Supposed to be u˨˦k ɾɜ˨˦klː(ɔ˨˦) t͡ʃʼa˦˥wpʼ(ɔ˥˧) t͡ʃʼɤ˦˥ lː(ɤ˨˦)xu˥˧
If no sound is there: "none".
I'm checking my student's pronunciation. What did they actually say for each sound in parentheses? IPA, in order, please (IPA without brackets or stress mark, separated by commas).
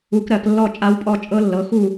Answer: ɔ˥˧, ɔ˥˧, ɤ˨˦